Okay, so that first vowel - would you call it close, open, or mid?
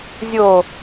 mid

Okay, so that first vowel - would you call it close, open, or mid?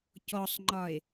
mid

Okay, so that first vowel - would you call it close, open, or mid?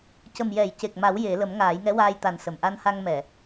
mid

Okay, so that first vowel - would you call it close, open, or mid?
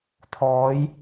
mid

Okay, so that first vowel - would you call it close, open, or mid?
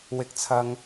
close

